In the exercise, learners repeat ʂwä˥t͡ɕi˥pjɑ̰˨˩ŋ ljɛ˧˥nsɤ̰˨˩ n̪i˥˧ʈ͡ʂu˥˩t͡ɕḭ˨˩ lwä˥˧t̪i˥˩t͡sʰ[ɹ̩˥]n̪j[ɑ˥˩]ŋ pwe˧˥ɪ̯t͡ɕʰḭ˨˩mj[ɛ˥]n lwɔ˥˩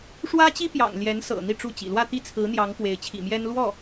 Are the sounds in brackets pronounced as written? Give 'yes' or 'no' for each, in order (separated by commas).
no, no, yes